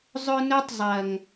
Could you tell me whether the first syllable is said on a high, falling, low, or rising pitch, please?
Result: high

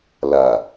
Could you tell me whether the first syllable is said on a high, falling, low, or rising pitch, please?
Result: low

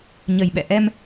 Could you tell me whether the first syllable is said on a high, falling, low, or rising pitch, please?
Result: low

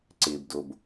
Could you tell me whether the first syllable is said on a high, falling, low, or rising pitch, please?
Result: low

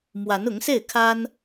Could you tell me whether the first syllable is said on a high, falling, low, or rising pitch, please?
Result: rising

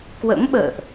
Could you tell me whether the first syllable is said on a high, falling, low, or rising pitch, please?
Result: rising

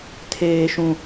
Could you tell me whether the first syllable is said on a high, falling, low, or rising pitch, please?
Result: high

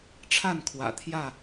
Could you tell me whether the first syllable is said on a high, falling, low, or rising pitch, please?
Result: falling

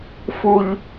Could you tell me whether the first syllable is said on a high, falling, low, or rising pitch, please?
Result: high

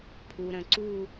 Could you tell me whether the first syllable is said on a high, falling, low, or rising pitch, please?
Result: low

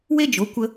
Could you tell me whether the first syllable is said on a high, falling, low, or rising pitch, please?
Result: high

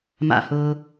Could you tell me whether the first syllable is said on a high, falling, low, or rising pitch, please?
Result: falling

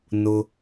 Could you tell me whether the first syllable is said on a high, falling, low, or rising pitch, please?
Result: low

